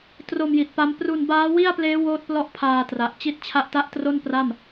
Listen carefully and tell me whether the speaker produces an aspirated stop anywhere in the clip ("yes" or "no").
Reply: yes